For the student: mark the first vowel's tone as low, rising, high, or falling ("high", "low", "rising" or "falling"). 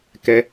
high